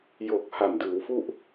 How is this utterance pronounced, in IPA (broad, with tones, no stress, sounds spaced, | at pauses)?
j o˨˩ k̚ h a˨˩ m d ɯː˩˦ w f u˥˩ ʔ